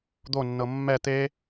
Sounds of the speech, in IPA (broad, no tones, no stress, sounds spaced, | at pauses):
d̪ o nː ɤ mː ɛ t̪ e